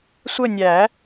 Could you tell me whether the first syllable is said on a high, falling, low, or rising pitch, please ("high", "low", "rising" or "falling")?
falling